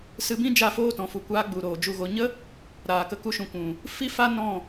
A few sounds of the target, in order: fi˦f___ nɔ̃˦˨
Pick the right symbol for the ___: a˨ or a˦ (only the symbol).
a˦